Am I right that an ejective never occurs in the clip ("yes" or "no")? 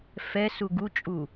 no